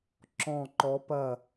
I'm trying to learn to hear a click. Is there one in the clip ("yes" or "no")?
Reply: yes